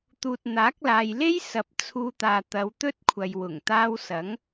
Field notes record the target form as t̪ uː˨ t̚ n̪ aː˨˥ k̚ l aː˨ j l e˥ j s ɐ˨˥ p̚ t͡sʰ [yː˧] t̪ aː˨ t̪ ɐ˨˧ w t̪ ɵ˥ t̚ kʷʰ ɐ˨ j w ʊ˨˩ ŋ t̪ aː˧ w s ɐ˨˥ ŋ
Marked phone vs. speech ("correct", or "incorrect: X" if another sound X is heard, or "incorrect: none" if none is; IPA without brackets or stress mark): incorrect: uː˧